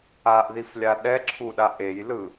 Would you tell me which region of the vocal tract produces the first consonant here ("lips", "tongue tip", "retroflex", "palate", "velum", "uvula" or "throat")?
throat